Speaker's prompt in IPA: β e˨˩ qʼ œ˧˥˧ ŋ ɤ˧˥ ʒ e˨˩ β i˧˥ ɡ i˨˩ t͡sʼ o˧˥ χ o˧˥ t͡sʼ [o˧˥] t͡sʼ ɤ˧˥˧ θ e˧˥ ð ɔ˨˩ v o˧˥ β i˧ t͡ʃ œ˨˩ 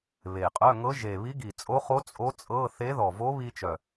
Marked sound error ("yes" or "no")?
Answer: no